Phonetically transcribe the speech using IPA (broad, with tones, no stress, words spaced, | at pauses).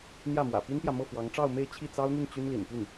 n̪jä˥˩mwä̰˨˩ pi˥npjä˨mɤ˥˩ fwɑ˧˥ŋʈ͡ʂɑ˥˧ʊ̯me˥˧ɪ̯ t͡ɕʰi˥˩t͡sɑ˥ʊ̯n̪y˥˩n t͡ɕy˥nlḭ˨˩npy˥˩n